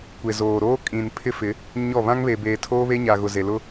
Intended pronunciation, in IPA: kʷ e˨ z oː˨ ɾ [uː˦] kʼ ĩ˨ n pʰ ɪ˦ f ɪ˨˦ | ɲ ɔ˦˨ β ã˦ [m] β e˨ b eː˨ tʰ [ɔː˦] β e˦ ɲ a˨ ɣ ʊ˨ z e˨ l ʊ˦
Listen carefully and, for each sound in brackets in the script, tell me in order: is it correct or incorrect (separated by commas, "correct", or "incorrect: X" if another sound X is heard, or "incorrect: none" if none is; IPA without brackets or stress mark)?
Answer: incorrect: oː˦, incorrect: ŋ, incorrect: oː˦